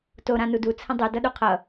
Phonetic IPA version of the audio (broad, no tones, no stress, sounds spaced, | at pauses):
t o ɾ ã n u d u t͡sʰ ə̃ dˤ ɵ d ʌ ɗ u qʰ ʌ